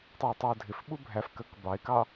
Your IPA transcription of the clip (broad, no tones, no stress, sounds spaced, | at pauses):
tˤ ɪː tˤ ʊː dʱ ɪ f ɓ u bʱ æ f k ɜ k b ɑ ɪ̯ k ɑ